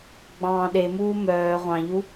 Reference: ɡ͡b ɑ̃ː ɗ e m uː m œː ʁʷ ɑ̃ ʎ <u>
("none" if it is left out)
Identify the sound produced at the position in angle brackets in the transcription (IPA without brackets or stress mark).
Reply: u